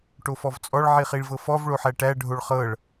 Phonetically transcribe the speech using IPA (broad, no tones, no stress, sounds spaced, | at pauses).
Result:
ʈ o f ɔ v t͡sʼ ɔ ɭ ʕ i χ i ɭ v ɤ f ɔ v ɭ o ħ æ ʈ æ ɖʱ o ɭ χ ɤ ɭ